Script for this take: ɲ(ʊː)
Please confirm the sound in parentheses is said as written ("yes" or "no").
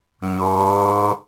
yes